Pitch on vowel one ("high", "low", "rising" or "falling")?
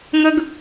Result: high